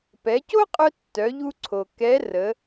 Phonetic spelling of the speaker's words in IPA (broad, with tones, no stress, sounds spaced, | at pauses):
p ɛ˩˧ c o˥ qʼ œ˧ tː œ˩˧ ʎ u˧ ǀʰ o˩ k ɛ˧˥ r ə˩˧